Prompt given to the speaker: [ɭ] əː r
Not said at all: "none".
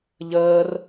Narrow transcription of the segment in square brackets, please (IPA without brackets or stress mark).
ʎ